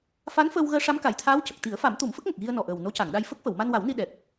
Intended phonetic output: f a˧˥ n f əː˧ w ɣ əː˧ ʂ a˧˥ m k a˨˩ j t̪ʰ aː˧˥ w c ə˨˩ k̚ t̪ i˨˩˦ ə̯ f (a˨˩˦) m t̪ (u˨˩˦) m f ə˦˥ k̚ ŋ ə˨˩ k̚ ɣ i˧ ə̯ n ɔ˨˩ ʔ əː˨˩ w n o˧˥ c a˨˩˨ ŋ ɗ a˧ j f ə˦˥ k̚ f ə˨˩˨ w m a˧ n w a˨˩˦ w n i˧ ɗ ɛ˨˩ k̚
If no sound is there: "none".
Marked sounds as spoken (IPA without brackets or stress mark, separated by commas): a˨˩˦, u˨˩˦